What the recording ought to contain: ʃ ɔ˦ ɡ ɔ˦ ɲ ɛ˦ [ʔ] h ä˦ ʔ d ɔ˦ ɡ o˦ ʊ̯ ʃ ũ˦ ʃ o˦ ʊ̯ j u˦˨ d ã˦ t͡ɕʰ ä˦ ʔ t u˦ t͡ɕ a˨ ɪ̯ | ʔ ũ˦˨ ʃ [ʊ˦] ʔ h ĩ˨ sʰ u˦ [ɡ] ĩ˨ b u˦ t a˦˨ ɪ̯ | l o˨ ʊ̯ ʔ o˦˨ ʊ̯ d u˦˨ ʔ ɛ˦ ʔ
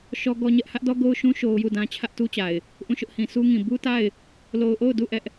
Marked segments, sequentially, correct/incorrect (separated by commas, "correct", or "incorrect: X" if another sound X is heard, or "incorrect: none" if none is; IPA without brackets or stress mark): correct, correct, incorrect: ŋ